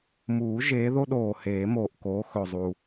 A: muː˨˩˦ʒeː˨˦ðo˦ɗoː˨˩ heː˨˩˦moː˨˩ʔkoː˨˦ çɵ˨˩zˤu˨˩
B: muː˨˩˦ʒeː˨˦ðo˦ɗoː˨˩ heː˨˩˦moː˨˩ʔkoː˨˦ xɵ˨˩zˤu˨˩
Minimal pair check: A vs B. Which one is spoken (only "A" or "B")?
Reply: B